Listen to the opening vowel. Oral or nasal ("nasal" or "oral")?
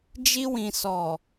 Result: oral